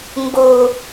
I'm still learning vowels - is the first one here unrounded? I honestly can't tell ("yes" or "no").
no